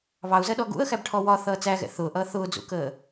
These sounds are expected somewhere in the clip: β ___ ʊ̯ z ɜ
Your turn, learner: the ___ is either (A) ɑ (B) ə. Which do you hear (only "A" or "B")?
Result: A